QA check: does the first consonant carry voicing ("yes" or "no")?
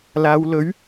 yes